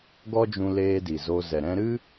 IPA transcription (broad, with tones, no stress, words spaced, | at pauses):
ɡɔ˦d͡ʒũ˧leː˧ di˨zo˧ zɛ˨ɾɛ̃˧ɾɨ˦